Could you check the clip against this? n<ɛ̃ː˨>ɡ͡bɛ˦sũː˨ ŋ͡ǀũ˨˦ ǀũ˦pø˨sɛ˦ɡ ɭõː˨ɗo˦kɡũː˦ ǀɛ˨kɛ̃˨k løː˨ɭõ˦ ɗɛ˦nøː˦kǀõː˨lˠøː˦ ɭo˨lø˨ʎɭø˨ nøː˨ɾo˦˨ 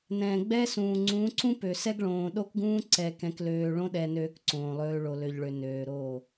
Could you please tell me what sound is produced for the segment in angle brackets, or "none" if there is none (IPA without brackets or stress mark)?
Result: ɛ̃ː˨